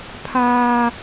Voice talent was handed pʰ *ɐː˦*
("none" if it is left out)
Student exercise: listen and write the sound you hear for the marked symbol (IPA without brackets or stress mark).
aː˦